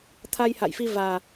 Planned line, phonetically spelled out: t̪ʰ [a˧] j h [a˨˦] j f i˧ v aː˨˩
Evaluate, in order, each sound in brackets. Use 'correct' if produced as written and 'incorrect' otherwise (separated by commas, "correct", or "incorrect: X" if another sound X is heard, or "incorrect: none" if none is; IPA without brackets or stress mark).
correct, incorrect: a̰˧˨